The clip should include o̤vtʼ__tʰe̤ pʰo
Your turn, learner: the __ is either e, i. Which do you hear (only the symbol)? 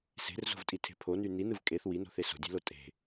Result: i